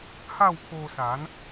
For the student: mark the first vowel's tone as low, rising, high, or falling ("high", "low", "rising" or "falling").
falling